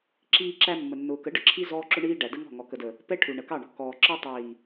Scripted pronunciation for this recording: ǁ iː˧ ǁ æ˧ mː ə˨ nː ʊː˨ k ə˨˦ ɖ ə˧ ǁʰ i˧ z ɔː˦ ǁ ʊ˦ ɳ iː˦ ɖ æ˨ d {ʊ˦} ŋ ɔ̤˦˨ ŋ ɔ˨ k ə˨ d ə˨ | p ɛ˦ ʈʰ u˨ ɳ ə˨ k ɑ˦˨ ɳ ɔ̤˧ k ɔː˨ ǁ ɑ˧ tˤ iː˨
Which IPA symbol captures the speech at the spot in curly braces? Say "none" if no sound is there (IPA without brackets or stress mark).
ə˦